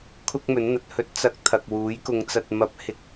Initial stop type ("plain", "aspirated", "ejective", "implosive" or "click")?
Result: aspirated